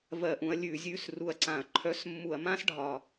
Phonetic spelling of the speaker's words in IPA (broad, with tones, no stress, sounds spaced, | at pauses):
v ɜ˧˩˧ ʔ ũ˩˧ ɐ̯ lʲ ʉ˧˩˧ zʲ ʉ˧˥˧ s r u˨˩ ɐ̯ ǀ ã˧˩˧ ɐ̯ ǃʰ œ˧˥˧ s mː u˧˩˧ ɐ̯ m ã˥ s ɖʱ ɒ˨˩